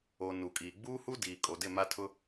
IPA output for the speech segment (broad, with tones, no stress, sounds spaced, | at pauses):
o˨ n u˨ kʼ iː˨ ɡ͡b uː˦ h u˦ d iː˨ kʼ o˨ d ɪ˦˨ m a˦ tʰ ʊ˦